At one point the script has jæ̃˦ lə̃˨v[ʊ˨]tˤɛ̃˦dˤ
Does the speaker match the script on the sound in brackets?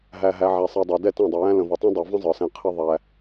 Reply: no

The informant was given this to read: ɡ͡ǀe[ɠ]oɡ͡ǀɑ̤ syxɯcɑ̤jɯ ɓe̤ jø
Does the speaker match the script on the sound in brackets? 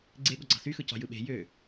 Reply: yes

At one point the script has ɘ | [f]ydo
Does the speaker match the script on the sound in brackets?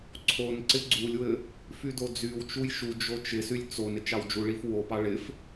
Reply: yes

